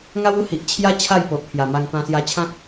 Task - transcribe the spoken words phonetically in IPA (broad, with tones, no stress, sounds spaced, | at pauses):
ŋ a˦ w u˦ h i˨ ʔ t͡ɕʰ j a˦ t͡ɕʰ a˥˧ j p o˨ ʔ pʰ j a˨˩ m a˧ ŋ t̪ ã˧ s j a˧ t͡ɕʰ ã˦ k̚